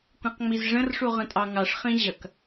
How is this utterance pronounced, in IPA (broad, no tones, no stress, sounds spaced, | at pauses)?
kʷ ĩ q ŋ͡m i z ʐ ə̃ r ʂ u ʁ ə̃ tʼ ɑ ŋ ɑ ʂ χ ĩ ʑ ɐ k